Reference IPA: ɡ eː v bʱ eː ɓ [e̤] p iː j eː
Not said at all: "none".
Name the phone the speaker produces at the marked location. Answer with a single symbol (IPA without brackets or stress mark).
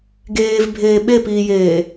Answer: e